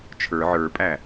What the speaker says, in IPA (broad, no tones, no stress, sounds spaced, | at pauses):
t͡ʃʰ ə˞ ʕ ə˞ pʼ æ